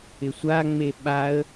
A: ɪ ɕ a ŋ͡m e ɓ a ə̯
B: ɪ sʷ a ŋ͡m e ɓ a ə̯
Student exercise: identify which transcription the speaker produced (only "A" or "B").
B